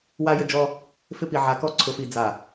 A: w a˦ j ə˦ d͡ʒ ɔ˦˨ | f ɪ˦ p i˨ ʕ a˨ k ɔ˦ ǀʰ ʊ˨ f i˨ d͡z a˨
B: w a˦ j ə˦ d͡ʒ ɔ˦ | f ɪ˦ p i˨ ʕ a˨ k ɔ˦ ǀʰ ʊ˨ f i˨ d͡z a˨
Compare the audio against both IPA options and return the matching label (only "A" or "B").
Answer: B